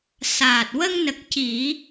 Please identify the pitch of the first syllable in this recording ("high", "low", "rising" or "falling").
low